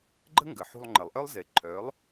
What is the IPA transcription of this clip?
ɡ͡ǃ ə̤˥ ŋ ɡ ə˩ ħ ṳ˧ lˠ ŋ͡ǃ ə˩ lˠ ʔ œ˥ lˠ z e˩˥ ǃʰ œː˩˥ lˠ

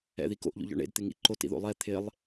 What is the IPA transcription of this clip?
ɛ̰ ð i k o̰ ʔ ʎ o̰ ʎ ɔ̰ ɳ ḛ d t̪ ɪ ŋ ḭ ǃ o t ḭ ð o̰ lˠ ɛ t̪ʰ ɪ lˠ

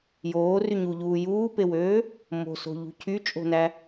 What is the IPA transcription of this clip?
j oː r y ɲ u ʎ uː j uː p e w øː | m o̤ s o̤ ʎ ṳ cʰ y t͡ʃʼ o̤ n æ

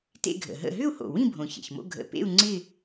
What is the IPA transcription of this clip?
t ḛ˥˧ ɡʱ ə̰˨˩ ɦ ə̰˥˧ ɦ ʏ˥˧ u̯ h o̰˨˩ w ĩ˥˧ bʱ õ˨˩ ç ḛ˨˩ ç m o̰˥˧ ɡʱ ə̰˨˩ p ḛ˥˧ u̯ ŋ͡ǀ ɪ˥˧

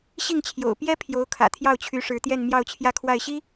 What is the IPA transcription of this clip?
ɕ i˥˩ ŋ t͡ɕʰ j o̰˨˩ ʊ̯ p j ɛ˥ pʰ j o˧˥ ʊ̯ kʰ ä̰˨˩ t̪ʰ j ɑ˥˩ ʊ̯ t͡ɕʰ y˧˥ ʂ ɻ̩˧˥ t̪ j ɛ˥˧ n m j ɑ˥˧ ʊ̯ t͡ɕʰ j ä˥˧ kʰ w a˥˩ ɪ̯ ɕ i˥

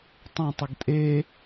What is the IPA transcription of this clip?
tˤ ə̃ tˤ ɪ ɡ tʼ e

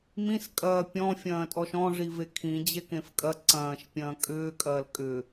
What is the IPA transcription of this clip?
m ĩ s kʼ ɐː pʲ ɔ̃ fʲ ɐ̃ː tʼ ɔ ʃ ɔ̃ ʐ i v e kʰ ĩ d͡ʑ e k ẽ f kʼ ɐ ǀ ɐ̃ː ʃ pʲ ɐ̃ː kʼ ʏː kʼ ɐː l kʼ ʏ

